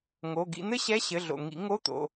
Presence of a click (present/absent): absent